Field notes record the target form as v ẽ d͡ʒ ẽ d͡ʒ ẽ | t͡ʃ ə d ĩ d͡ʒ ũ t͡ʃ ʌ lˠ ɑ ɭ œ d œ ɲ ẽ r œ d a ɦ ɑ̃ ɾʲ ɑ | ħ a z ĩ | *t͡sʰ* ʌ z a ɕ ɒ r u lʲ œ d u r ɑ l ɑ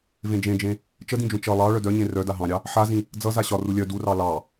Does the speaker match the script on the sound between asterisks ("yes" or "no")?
no